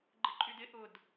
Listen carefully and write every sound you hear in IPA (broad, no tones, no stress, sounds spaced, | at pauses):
ɡ͡ǃ ɪ ǃʼ y d ɪ ʔ ʊ d